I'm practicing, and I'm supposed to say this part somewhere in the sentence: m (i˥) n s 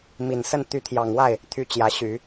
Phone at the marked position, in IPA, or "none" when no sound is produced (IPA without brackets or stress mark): i˨˩